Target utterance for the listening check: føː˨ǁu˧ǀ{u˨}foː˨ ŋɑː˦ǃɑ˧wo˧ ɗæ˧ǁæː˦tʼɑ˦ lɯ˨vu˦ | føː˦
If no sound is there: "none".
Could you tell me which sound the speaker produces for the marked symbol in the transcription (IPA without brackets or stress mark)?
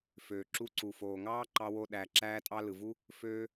u˨